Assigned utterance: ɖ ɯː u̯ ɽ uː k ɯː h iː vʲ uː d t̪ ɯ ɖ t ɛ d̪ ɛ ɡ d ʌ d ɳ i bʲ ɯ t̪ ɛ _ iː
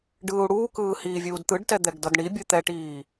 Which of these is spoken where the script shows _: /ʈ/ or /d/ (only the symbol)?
ʈ